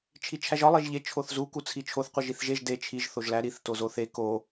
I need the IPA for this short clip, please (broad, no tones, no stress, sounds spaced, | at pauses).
t͡ʃʰ i t͡ʃʰ æ ʒ ɒ lˠ e ʒ ʎ e t͡ʃʰ o θ z u k u t͡sʰ i t͡ʃʰ o θ qʷ i ʒ i θ ʒ e ʒ d e t͡ʃʰ i ʒ θ o ʒ l æ ɾ i θ t o z o θ e k o